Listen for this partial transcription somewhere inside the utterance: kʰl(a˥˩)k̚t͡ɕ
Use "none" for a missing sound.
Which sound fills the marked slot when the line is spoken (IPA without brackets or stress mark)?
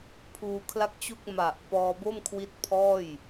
a˥˩